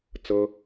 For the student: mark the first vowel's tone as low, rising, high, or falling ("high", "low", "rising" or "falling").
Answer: high